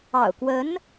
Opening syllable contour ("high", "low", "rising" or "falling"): low